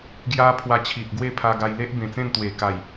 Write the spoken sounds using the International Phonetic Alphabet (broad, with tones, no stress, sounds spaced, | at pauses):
ɡ j a˦ pʰ w a˧ t͡ɕʰ i˨ ʔ ɡ w e˥˧ pʰ a˧ ɡ a˧ j l e˦ ʔ b ẽ˨˩ t͡s ẽ˥˧ n t̪ w e˨˩ k a˨˩ j